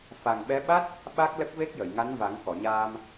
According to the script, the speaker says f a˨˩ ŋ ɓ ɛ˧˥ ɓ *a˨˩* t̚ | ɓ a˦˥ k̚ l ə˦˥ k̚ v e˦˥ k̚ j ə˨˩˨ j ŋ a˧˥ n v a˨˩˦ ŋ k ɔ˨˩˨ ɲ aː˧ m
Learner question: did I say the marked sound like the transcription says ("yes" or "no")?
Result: no